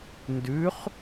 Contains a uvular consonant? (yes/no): yes